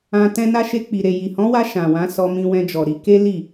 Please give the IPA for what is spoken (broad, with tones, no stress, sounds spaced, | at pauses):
ã˧ t ɛ̃˧ n a˧ ʃ e˧ k͡p i˨ ɾ e˨ j i˨ h ɔ̃˨˦ w a˧ ʃ ã˨ w ã˨˦ s ɔ˧ m ĩ˧ w ɛ̃˧ d͡ʒ ɔ˨ ɾ i˧ k e˦ l i˦˨